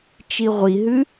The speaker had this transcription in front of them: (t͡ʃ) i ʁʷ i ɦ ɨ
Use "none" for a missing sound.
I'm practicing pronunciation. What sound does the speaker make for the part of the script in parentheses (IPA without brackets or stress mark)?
t͡ʃ